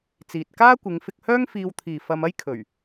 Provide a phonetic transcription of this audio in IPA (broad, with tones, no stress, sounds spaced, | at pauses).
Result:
t͡s iː˨ t̚ k aː˥ kʷ ɪ˨˧ ŋ f ɪ˧ k̚ h œː˥ ŋ f iː˧ w t̪ʰ iː˨ f ɐ˧ m ɐ˥ j kʰ ɵ˨˩ ɥ